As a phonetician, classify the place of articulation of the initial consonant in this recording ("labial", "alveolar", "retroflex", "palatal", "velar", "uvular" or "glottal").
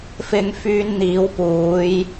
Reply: labial